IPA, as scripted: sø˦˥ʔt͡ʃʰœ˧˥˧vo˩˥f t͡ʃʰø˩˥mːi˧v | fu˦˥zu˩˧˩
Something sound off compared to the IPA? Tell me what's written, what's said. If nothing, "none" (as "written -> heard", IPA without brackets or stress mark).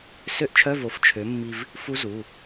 none